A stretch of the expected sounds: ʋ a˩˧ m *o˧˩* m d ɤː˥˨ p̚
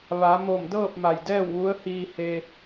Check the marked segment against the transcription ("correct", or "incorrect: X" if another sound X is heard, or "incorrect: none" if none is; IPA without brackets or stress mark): correct